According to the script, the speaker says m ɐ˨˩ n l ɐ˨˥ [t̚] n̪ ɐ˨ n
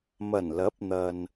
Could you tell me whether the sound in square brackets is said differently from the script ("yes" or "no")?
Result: yes